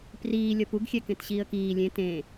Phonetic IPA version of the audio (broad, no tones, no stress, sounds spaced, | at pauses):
p r iː lʲ ʌ p u ɡ xʲ ɛ k ẽ t ɕ iː ə̯ k iː lʲ ẽ t ẽ